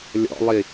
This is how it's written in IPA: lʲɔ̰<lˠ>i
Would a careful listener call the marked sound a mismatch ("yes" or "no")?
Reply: no